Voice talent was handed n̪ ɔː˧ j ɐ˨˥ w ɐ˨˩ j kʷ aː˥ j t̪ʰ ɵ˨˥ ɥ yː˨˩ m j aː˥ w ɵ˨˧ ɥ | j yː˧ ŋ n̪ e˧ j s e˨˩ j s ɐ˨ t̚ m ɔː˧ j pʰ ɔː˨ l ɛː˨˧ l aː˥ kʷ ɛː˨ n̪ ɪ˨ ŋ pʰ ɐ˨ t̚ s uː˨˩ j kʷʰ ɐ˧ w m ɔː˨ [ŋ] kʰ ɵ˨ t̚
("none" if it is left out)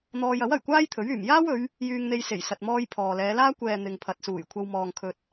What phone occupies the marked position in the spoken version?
ŋ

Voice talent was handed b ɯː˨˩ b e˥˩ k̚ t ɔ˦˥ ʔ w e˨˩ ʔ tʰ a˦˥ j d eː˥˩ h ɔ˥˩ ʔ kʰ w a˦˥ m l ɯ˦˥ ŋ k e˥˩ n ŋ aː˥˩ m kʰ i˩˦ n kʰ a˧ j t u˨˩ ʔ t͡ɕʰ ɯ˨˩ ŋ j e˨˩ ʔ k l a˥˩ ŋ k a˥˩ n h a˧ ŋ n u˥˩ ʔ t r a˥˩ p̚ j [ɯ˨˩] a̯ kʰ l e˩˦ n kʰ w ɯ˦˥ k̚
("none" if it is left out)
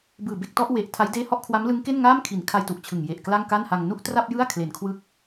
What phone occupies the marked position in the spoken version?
ɯ˥˩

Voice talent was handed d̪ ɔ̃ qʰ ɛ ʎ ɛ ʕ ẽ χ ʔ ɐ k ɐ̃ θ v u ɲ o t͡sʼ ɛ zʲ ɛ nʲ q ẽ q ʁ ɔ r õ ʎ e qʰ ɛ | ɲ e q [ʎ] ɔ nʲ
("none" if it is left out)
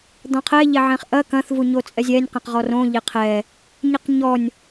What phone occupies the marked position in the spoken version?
ɲ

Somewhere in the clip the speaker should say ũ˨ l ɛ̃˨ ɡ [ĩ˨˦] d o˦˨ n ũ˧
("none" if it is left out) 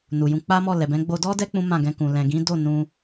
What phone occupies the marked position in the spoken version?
ĩ˨˦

